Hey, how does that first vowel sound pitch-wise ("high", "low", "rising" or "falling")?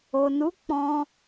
low